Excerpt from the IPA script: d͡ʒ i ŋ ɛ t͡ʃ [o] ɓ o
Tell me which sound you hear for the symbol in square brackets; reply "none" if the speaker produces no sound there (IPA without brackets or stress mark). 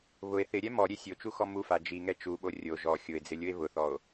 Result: u